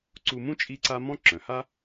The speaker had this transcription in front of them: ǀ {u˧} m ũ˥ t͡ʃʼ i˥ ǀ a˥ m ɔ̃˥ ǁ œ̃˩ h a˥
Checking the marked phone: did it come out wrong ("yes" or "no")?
no